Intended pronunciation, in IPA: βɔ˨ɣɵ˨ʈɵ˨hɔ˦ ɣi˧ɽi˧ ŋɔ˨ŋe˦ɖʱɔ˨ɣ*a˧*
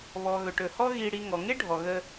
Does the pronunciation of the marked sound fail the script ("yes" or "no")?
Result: yes